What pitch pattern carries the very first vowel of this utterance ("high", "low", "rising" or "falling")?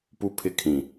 high